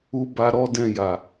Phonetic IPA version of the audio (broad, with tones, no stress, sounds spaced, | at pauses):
u˦ b a˦ ɾ ɔ˦ d ɛ̃˦˨ j a˨